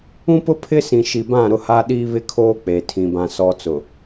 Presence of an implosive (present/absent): present